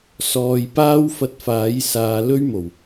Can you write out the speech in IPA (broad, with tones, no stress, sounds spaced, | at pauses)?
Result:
s ɔː˨ j p aː˥ w f ɐ˧ t̚ f aː˨˥ j s aː˨˧ l ɵ˥ ɥ m o˨˩ w